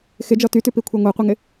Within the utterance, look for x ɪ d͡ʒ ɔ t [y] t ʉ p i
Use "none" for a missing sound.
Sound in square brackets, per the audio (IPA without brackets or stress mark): y